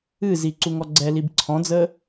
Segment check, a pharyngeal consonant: absent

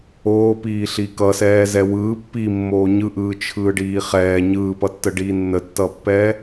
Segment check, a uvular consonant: present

